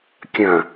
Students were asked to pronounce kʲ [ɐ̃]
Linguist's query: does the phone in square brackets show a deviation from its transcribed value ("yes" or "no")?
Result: no